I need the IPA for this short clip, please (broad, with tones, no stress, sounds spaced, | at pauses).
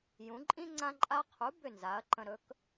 j ũ˩˥ ǃʼ ĩ˥ ŋ͡ǀ ã˧ ǃʼ a˧ qʰ u˩˥ b ʏ˥˩ n z a˩˥ ɐ̯ ǃ ə̃˧ ɾ ɵ˩˥ k